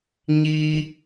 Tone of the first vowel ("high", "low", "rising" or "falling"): high